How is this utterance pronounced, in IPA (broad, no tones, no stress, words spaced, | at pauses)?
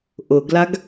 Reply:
ʔʊɡlaɡ